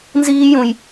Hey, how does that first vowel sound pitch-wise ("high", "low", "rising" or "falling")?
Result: high